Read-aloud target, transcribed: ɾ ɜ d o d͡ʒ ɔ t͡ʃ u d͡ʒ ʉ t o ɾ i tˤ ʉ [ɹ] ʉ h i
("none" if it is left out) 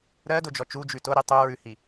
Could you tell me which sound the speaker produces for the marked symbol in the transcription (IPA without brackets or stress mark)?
ɹ